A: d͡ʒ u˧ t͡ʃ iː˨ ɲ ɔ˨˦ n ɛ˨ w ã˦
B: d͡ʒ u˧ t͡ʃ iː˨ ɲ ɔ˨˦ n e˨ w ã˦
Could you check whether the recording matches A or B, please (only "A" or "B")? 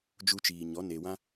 B